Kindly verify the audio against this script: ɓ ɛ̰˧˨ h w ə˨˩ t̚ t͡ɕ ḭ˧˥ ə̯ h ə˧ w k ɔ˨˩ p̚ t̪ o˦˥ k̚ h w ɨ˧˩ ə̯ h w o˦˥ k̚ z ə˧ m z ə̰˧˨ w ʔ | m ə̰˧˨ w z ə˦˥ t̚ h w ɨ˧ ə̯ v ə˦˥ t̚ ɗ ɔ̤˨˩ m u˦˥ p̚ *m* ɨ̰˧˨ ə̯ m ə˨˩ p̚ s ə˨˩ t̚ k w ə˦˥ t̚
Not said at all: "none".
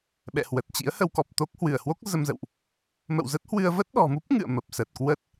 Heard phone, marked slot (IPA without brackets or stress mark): ŋ